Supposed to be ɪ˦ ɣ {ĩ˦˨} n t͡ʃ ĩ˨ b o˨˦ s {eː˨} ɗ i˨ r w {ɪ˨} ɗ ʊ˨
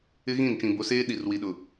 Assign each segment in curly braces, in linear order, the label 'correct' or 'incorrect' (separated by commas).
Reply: correct, incorrect, incorrect